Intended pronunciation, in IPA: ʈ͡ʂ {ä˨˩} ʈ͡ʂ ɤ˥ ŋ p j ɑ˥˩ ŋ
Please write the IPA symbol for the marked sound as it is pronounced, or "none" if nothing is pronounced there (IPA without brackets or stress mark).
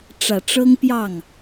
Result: ä˨˩